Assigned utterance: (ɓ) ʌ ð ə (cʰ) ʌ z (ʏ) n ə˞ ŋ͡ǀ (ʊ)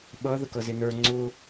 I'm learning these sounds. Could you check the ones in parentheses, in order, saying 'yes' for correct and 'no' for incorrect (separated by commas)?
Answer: yes, no, no, yes